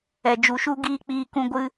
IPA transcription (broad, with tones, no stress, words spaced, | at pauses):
ɛ˨d͡ʒu˨ʃu˦ɡiː˦ k͡piː˧kũ˧ ɡʷɨ˦